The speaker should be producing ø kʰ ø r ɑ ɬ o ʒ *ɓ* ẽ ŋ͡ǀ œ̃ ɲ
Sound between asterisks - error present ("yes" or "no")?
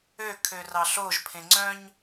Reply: yes